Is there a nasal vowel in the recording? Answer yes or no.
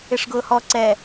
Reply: no